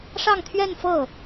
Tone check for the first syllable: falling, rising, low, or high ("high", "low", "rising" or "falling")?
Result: falling